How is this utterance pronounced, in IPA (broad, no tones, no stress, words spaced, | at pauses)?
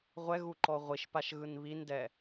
ʁʷɛɣuǃɔ ʁʷiʃpaʃɣɯn βindɛ